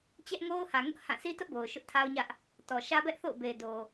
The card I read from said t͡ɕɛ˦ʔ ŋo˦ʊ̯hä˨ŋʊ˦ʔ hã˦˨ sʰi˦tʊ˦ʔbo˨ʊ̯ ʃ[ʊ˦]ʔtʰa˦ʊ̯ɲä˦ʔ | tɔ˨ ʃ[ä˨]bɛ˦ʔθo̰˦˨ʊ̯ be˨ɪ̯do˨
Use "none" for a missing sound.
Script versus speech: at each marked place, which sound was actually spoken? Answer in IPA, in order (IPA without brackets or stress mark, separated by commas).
ʊ˦, ä˦